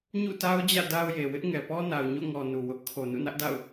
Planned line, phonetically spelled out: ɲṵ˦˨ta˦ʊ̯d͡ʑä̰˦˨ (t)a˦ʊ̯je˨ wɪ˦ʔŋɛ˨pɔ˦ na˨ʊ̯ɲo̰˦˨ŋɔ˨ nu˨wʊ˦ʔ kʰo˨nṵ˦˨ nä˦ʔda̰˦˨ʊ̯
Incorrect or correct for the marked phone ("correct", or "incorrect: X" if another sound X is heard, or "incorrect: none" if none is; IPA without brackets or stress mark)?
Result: incorrect: d